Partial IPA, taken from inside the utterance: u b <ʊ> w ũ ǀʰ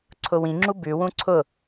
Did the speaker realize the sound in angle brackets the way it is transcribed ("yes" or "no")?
no